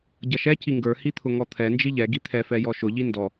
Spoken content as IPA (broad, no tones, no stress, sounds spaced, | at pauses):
ɟ ʌ ʃ ɛ c i ŋ ɡ ə˞ h i t̪ʰ ʊ ŋ ɔ t̪ʰ ɛ n d͡ʒ i ʎ ɛ ɡ i t̪ʰ ɛ f ɛ j ɔ ʃ ʊ ʎ i n d ɔ